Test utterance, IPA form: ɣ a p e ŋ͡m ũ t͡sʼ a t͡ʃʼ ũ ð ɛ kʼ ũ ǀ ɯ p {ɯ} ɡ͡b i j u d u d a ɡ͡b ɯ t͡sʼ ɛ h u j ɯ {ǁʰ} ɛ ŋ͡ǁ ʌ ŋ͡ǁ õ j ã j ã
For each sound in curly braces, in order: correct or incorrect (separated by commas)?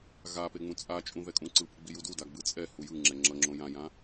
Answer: correct, incorrect